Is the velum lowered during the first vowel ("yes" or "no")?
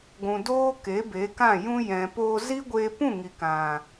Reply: yes